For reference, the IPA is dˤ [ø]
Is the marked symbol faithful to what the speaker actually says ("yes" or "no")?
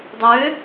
yes